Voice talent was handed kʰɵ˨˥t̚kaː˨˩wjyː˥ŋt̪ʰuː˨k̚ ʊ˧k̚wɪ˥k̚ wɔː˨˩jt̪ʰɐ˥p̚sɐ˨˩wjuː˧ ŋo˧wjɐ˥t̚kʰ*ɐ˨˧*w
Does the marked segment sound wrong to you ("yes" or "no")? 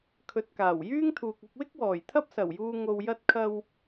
yes